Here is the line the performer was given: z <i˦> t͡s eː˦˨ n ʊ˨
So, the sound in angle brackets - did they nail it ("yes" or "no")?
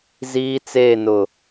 no